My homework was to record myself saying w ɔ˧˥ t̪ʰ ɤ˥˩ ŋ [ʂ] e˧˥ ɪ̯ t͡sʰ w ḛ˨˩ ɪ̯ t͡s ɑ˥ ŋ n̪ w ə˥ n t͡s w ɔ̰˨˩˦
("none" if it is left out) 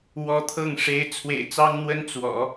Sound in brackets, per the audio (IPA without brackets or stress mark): ʂ